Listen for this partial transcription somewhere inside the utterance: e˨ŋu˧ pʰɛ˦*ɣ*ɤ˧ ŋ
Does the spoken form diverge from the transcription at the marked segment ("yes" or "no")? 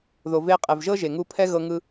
no